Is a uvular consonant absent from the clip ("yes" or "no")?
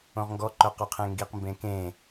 no